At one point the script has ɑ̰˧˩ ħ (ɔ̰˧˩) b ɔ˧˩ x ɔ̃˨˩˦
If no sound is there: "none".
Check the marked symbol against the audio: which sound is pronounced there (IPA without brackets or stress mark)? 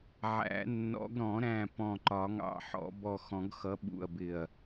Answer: ɔ̰˨˩˦